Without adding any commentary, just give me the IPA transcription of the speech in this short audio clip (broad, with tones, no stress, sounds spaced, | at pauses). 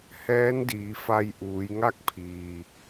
h ɛː˧˥ n d iː˩˧ f a˧ j ʔ uː˩˧ j ŋ a˥˨ k̚ pʰ iː˩